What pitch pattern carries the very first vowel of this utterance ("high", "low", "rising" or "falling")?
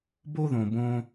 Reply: high